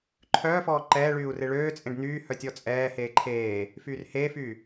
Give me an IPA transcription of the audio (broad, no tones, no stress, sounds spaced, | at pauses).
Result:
ǃʰ œː f ɔː ǃ ɛː ɭ yː u̯ r e ɭ øː t͡sʼ ẽ ɖ n̪ yː h œ tʲ ɔ t͡sʼ ɛː h eː ǃʰ eː | f yː r h eː f yː